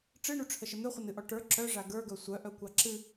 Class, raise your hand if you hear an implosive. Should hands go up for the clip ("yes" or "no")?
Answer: no